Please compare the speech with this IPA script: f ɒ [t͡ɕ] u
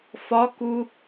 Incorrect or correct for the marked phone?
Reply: incorrect: k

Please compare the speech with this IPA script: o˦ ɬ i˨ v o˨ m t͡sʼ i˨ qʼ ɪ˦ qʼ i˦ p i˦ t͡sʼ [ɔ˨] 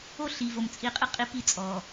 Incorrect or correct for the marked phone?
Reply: correct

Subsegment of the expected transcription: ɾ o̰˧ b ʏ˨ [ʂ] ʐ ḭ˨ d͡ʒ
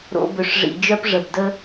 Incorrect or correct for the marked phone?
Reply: correct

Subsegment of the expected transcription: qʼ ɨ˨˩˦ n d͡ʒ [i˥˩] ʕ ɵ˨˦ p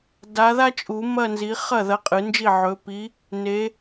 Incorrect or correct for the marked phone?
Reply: correct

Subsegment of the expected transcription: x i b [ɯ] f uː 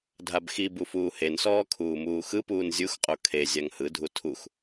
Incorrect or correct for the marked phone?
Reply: incorrect: u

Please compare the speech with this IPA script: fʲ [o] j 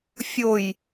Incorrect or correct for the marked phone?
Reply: correct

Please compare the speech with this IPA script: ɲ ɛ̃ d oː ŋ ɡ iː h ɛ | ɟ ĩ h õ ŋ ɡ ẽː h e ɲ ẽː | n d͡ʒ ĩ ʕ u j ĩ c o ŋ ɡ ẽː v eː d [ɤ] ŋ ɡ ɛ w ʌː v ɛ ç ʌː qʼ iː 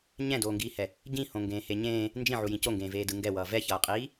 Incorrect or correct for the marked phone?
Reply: incorrect: ɯ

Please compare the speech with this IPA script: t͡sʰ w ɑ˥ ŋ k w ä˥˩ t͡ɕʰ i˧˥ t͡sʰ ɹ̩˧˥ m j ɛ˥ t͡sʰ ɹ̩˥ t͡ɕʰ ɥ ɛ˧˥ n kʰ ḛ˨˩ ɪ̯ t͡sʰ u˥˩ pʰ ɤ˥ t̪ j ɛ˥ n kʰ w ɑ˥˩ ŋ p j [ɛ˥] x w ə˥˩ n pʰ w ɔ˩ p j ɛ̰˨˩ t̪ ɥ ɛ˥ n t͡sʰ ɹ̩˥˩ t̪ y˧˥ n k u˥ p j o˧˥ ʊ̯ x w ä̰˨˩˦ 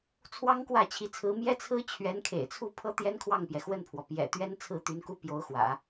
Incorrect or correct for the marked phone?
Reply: incorrect: ɛ˩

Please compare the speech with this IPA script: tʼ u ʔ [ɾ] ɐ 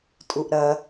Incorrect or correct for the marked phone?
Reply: correct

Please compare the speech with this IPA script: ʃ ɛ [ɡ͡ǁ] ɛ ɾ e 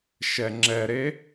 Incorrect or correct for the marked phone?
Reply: incorrect: ŋ͡ǁ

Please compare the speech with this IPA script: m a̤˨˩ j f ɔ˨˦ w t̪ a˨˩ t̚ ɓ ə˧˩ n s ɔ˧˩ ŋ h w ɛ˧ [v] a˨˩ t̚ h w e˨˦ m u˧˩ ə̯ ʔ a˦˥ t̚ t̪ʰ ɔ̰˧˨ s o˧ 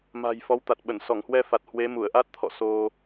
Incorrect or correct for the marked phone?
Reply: incorrect: f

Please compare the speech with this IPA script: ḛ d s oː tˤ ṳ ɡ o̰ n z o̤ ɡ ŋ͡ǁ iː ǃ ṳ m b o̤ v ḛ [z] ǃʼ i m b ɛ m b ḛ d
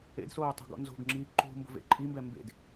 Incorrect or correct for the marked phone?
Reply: incorrect: none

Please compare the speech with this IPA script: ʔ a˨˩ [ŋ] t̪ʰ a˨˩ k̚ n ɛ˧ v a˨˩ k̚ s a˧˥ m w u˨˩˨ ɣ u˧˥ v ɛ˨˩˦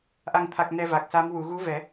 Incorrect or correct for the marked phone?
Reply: correct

